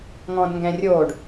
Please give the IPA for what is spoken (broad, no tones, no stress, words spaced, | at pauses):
ŋɔ̃dŋɡɛ̃rʲoɖ